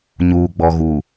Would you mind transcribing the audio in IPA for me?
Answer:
ɲuː˨ɡ͡bɔ˨ɣu˨

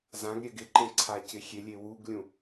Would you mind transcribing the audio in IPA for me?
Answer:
zãɡɾʲɛ ɡɪǃẽ ǀʰacɪxʲelʲe wuɡlʲũ

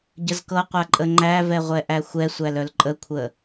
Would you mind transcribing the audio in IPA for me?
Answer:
ɟəzkɤqʷa ǃʼəŋ͡ǃævɛ ʁʷɛʔæxʷɛsʷæl œlǃʼəkʷʰə

